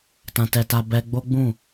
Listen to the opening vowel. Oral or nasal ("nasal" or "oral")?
nasal